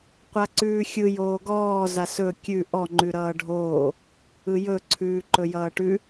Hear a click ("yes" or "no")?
yes